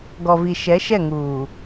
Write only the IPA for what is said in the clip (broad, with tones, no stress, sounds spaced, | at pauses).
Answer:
ɡ ɔ˨ v i˨ ʃ ɛ˨˦ ʃ ɛ˦˨ ŋ uː˨